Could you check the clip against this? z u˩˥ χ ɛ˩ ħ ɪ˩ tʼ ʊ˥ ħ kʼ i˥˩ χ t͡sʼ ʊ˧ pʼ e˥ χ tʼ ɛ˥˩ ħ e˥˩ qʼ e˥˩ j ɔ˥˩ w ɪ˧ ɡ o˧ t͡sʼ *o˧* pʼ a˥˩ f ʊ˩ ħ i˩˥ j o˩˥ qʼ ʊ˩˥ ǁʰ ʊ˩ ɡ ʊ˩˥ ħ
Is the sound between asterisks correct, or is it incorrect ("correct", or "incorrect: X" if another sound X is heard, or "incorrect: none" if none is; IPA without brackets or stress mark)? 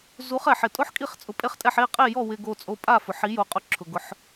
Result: correct